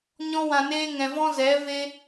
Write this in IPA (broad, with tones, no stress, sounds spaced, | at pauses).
ɲ ɔ̃˧ w ã˨ n eː˧ ŋ ɛ̃˨ v ɔ̃˦ z ɛ˨˦ v e˧